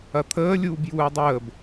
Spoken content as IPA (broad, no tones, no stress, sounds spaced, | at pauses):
ɐ t̪ʰ əː lʲ uː b j uː ɪ̯ dˤ əː b